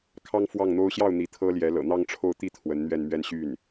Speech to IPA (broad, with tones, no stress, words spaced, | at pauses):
kʰɑ˥ŋ fwɑ˥˩ŋn̪o˥ʊ̯ ɕjɑ˥˩ʊ̯ n̪i˧˥t̪ʰɤ˥ljɛ˧˥lɤ̰˨˩ n̪ɑ˥˧ŋʈ͡ʂʰo˥˧ʊ̯ t̪i˥˩ t̪ʰwə˧˥nn̪ɥɛ˥˧n mɥɛ˥˧nɕy˥˩n